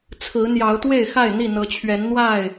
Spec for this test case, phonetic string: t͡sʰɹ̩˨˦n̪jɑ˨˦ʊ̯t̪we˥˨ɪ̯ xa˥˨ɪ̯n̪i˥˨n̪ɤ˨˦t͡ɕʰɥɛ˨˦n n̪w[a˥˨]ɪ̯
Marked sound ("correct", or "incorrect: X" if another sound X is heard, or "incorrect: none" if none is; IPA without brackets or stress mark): correct